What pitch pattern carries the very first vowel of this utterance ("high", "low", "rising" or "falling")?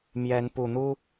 rising